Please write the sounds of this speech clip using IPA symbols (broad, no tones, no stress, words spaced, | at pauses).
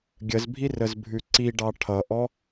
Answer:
ɡʲəzbʱirəzbʱʉ ǀiɖɑ ʈʰʌʔɔ